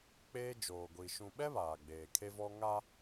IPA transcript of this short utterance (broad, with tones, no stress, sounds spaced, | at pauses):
k͡p eː˦ d͡ʒ oː˨ ɡʷ i˨ ʃ ũ˨ ɓ ɛ˦ β aː˨ ɡ͡b eː˨ kʰ e˦ v ɔ˦ ŋ a˦